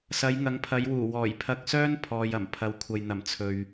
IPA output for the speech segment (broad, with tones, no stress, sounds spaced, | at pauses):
s ɐ˨˧ j ŋ ɐ˨˧ ŋ pʰ ɐ˨˧ j w uː˨˩ w ɔː˨˩ j pʰ ɐ˧ k̚ s œː˥ n pʰ ɔː˨ j ɐ˨˩ m pʰ ɐ˨˧ w kʷʰ ɐ˨ j n̪ ɐ˨˩ m t͡sʰ ɵ˨ ɥ